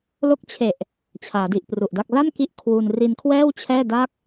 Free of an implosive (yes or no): yes